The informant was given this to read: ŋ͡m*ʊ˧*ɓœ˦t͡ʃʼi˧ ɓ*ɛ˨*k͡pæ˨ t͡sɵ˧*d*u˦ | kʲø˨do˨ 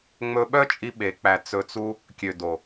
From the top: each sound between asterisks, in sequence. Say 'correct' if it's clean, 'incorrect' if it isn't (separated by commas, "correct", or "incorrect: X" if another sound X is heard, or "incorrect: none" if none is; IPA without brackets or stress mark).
incorrect: ɵ˧, incorrect: e˨, incorrect: t͡s